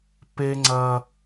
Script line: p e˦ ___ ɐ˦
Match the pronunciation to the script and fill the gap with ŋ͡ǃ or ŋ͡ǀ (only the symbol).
ŋ͡ǀ